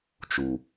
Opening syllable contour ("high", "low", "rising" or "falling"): low